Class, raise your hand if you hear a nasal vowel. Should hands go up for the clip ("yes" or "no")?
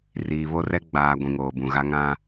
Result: yes